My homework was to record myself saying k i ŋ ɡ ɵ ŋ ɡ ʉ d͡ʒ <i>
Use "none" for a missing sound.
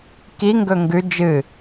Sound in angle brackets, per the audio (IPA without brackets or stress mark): ɨ